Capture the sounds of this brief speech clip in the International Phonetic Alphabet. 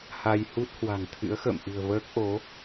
ha˧jhu˦˥t̚ hwa̤˨˩ŋt̪ʰɨ̰˧˥ə̯xə̰ː˧˨m ʔɨ̤˨˩ə̯vəː˦˥k̚ʔo˨˦

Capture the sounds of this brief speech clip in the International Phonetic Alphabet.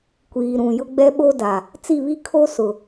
kʷiː˨ɾũ˨ jʊ˦ɡ͡bɛ˦ɓo˦da˨ | t͡si˦˨βi˦kʰo˦ sʊ˨

